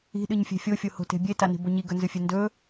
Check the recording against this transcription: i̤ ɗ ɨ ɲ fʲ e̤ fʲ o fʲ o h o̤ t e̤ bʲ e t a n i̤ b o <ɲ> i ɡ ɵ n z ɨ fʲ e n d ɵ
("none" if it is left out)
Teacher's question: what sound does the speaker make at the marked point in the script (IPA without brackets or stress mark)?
ɲ